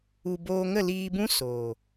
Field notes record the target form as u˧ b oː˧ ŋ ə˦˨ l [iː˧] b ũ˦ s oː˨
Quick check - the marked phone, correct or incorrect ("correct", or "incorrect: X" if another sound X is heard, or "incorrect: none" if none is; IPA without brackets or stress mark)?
correct